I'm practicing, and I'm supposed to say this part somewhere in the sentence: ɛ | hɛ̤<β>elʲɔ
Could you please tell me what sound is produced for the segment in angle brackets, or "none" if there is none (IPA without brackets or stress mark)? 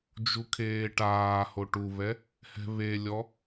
β